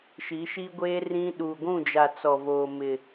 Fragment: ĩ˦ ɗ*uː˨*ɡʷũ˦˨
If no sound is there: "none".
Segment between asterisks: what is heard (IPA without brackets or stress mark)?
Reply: u˨